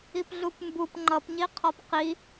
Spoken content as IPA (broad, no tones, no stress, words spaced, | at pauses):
ipɮupmbup ŋ͡ǃʌpɲi qʰɒpqi